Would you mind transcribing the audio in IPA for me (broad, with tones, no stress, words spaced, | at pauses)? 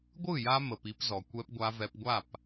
ɡʷɯ˦˨ja˧mə˨p i˧pzɔ˨ kʷɛ˧pɡʷa˧vɛ˧pɡʷa˦˨p